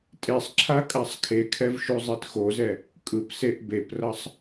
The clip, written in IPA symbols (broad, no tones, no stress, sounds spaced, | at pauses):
tʼ e sˤ ǁʰ a kʼ a sˤ kʰ e kʰ ɛ v ʃ u zˤ e t x o z ɛ | kʼ ɯ p s e ʔ b e p r ʌ sˤ